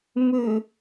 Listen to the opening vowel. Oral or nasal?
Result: oral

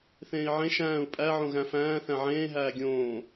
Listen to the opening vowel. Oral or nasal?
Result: nasal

